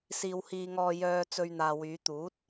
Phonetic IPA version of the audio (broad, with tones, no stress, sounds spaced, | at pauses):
s iː˨ w h iː˧ ŋ ɔː˧ j œː˧ t͡s ɵ˧ ɥ n̪ aː˨ w yː˨˧ t̪ uː˨˥ t̚